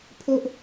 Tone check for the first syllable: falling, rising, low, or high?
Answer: low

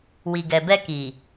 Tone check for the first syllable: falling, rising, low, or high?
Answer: low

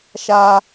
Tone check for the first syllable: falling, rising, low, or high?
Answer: high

